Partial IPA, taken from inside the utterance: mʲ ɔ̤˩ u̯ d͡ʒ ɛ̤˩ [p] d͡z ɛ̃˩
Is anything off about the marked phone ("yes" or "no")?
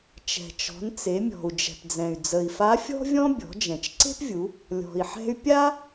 no